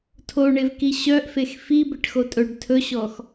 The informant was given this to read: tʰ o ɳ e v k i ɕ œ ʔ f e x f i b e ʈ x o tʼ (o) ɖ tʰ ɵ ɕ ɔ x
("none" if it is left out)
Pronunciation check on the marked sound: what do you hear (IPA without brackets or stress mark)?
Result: ɵ